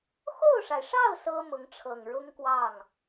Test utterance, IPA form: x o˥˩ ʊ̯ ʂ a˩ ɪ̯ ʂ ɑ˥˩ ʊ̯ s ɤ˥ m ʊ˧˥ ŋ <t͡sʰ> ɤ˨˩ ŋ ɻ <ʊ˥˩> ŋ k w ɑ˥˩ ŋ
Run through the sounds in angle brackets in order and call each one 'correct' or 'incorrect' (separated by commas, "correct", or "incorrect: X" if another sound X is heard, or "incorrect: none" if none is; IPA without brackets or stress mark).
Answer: incorrect: ʈ͡ʂʰ, incorrect: ʊ˥